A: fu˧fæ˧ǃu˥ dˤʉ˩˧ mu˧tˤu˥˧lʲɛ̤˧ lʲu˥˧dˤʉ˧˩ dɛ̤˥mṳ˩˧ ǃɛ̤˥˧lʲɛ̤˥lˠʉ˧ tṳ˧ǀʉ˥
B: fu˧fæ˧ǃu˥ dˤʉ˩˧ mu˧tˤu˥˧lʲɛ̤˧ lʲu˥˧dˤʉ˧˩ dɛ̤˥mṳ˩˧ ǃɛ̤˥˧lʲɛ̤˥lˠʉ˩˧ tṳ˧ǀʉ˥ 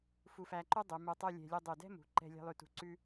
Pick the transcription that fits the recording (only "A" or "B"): A